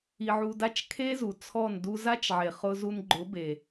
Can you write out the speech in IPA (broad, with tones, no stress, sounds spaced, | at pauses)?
i˧ ʕ u˧ d a˦ t͡ʃ kʰ e˦ z u˨ t͡sʰ ɔ˦˨ n d u˧ z a˦ t͡ʃ ʕ e˨ χ ʊ˧ z u˧ n ɡ͡ǃ ʊ˨˦ b e˨